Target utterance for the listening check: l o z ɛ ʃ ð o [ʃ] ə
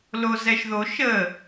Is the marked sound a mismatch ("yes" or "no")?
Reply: no